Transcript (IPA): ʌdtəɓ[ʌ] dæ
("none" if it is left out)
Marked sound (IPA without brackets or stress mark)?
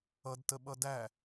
ʌ